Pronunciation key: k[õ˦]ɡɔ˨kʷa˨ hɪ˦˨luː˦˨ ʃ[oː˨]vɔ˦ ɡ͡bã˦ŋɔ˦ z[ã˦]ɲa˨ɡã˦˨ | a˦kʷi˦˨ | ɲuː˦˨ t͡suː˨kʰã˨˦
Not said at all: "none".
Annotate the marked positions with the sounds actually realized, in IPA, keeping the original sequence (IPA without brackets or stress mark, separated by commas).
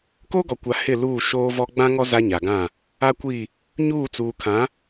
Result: o˦, oː˦, a˦